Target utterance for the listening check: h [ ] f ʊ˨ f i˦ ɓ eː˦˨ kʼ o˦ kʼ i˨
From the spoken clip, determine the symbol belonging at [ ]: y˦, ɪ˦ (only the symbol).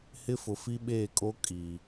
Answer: ɪ˦